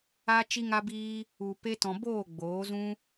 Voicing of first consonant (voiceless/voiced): voiceless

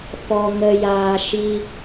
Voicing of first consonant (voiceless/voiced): voiceless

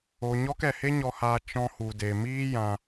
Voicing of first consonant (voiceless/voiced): voiced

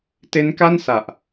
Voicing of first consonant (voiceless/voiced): voiceless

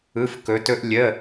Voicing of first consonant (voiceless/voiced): voiceless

